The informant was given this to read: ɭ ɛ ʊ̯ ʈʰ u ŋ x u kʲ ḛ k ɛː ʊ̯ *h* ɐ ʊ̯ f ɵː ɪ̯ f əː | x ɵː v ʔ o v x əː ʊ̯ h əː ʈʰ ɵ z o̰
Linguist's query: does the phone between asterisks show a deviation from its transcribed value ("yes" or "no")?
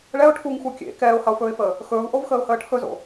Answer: no